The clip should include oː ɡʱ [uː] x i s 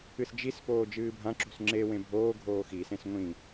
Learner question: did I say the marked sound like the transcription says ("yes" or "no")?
no